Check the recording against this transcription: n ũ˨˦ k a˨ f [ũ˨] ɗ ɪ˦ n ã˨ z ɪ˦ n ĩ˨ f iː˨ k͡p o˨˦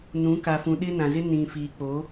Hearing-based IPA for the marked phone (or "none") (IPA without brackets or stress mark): ũ˨